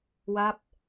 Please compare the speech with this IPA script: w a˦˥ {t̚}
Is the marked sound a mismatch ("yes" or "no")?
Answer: yes